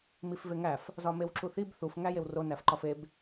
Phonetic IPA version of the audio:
m i f v e ŋ æ f | z ɒ m e w ǁ u θ i b θ u f ŋ æ j e w r o n æ f ǃ ɒ f e b

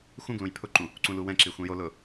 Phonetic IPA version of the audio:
x ũ ɡ l ũ j pʰ ʊ ǃ ũ | ǀ ũ l u w ɛ̃ ǁ i xʷ ĩ j o l ʊː

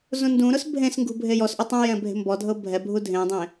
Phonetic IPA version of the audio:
z ũ n d ũ ɾ ʊ s bʱ ẽ s ŋ ɡ ṳ bʱ e j ɔ s ʔ ʊ tˤ ɛ̃ j ɛ̃ bʱ e̤ m b ɔ dʱ ɤ bʱ ɛ bʱ u dʱ ẽ dˤ ẽ

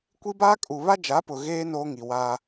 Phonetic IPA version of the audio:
kʷ i˦ b aː˦ kʼ u˨ β a˦ d͡ʒ a˨˦ p ʊ˨ ɣ eː˦ n oː˦ ŋ i˨ w aː˦

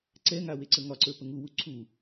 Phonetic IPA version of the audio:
ǀ ɛ ŋ a w e ǀ ə ŋ ɒ ǀ ə˞ p ə ŋ u w u ǀʰ u

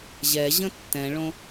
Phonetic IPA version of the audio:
ʑ ɛ ʑ ə̃ tː ɛ̃ ɭ õ

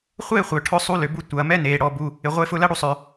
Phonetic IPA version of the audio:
χʷ eː˥˧ χʷ œ˩ ʈʰ ʊ˧ sˤ u˧ l ʏ˩ b u˧ tʷ ɐː˩ m ɛ˥˧ n eː˩ ɽ ɔ˩ b u˩ | ɪ˩ ʁʷ e˧ f ʊ˧ l ɐ˥˧ ɽ u˧ sˤ œ˩

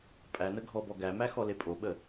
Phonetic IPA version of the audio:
pʼ æ n ə ɡʱ ɔ b ɔ ɡ æ m æ x ɔ l e pʼ o ɓ ə

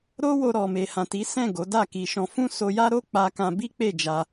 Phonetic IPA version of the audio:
ɾ o˦ w o˧ ɾ ɔ˨ m e˨ h ã˨ t i˨˦ s ɛ̃˦˨ ɡ o˨˦ d a˦˨ k i˧ ʃ ɔ̃˧ f ũ˦ s o˧ j a˦ ɾ o˦ k͡p a˧ k ã˧ b i˦ k͡p e˦˨ d͡ʒ a˧

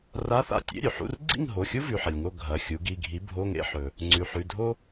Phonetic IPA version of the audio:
r a˧˥˧ θ a̰˥˨ tʲ ḛ˧˥˧ ɾʲ ʉ˩ ħ ṵ˧˥˧ r ɡ͡ǀ ḭ˥˨ ŋ ɦ o˩˧˩ xʲ u˥ v ʉ˩˧˩ ħ ɐ˩ lʲ ŋ o˥˨ ɡʱ ɐ˩˧˩ xʲ u˩˥ ɡ i˩˧˩ ɡʱ i˩˥ bʱ o˧˥˧ ŋ ḛ˥˨ ħ ɵ˩ | ŋ͡ǀ ʉ˩ ħ ʉ˩˧˩ dʱ o˥

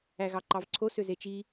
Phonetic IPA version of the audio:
æ ɣ ɑ ǃ ɑ v ǀʰ o s ø z e t͡ʃ i

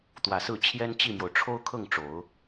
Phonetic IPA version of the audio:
t̪ w ä˨˩ s ɹ̩˥˩ t͡ɕʰ j ɛ˥ n t͡ɕ i˥˩ m j o˩ ʊ̯ ʈ͡ʂʰ o˥ ʊ̯ kʰ ɤ˥˩ ŋ ʈ͡ʂ o˨˩˦ ʊ̯

